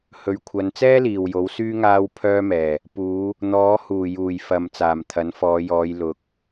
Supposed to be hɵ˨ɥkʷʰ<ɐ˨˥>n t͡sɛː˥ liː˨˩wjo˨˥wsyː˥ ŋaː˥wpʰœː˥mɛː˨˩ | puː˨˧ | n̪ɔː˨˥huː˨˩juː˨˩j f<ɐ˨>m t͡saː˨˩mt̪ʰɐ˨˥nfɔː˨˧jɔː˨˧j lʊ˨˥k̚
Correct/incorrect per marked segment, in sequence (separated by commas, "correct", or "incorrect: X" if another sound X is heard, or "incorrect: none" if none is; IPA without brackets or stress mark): incorrect: ɐ˨˧, correct